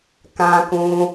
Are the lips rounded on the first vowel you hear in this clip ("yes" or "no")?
no